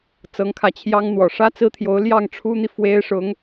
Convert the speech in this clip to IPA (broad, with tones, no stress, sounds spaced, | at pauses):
t͡s ɤ˧˥ ŋ kʰ ä˧˥ t͡ɕʰ j ɑ˥ ŋ n̪ w ɔ˨˩ ʂ ä˥ t͡s ɹ̩˥ t̪ʰ j o˧˥ ʊ̯ l j ɑ˥˩ ŋ ʈ͡ʂʰ u˥ n̪ i˨ f w e˥ ɪ̯ ʂ ʊ˧˥ ŋ